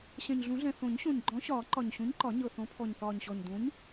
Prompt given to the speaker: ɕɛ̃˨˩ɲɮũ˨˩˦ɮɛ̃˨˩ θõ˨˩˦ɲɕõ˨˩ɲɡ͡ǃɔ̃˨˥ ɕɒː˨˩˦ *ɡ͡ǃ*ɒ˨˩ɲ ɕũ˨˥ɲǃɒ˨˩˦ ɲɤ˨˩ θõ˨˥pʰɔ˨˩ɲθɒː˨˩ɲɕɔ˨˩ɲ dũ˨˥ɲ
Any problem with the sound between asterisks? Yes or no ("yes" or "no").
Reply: yes